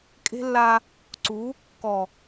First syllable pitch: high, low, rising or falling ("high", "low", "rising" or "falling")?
high